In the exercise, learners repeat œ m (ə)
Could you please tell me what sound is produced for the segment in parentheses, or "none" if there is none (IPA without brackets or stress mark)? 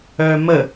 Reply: ə